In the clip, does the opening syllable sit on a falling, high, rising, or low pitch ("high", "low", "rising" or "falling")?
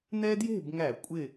high